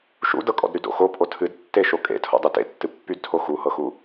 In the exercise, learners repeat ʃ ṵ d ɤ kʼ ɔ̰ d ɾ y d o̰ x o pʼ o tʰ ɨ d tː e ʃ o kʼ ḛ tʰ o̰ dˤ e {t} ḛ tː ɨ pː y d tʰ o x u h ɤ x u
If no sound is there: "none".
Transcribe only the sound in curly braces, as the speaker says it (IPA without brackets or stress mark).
t